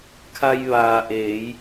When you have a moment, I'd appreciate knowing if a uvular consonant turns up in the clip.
no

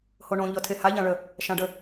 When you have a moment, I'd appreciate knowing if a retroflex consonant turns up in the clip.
yes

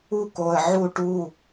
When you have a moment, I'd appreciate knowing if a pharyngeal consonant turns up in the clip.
yes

